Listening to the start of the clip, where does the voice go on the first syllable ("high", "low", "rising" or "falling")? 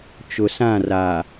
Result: low